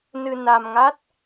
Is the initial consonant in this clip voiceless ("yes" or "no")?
no